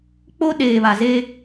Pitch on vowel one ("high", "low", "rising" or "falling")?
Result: high